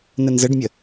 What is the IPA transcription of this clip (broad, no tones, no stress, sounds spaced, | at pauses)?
n ə n z ə ɖ mʲ ə